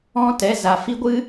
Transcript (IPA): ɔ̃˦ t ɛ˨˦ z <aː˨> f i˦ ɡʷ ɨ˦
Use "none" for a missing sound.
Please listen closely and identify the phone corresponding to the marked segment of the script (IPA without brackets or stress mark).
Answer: a˨